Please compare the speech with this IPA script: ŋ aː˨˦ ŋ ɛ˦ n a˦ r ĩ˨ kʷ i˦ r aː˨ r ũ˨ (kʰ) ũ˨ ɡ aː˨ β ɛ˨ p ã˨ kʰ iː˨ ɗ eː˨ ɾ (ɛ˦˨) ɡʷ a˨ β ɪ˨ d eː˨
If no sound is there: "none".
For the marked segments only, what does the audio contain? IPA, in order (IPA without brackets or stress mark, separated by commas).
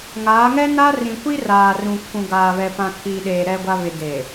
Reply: kʰ, ɛ˨